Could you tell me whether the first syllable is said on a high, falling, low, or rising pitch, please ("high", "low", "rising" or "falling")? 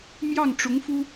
falling